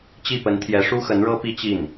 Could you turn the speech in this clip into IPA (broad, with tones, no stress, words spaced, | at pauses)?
t͡ɕi˥˩pə˧˥nt̪ʰjɛ˧˥ ʂu˥xə˧˥nɻɤ˥ pi˥ t͡ɕi˥˩n